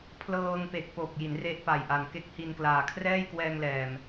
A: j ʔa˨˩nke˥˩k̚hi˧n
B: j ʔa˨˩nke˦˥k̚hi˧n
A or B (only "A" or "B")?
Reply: B